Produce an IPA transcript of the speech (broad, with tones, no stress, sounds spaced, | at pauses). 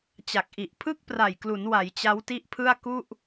t͡ɕ a˨˩ k̚ ʔ i˨˩ ʔ pʰ ɯ˥˩ k̚ p r a˨˩ j k l u˩˦ n w a˩˦ j t͡ɕ a˦˥ w t i˥˩ ʔ pʰ ɯ˥˩ a̯ k u˥˩ ʔ